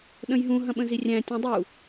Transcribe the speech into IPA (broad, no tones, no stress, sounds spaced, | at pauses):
ɗ ə̃ j ɦ ũ ɦ ɐ̃ ɓ ə̃ z i rʲ æ̃ tʲ ũ dˤ u